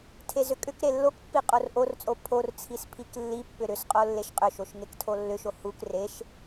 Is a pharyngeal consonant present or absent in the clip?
absent